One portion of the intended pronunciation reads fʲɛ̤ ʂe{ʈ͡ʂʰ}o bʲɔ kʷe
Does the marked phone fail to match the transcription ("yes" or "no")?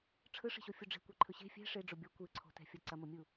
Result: yes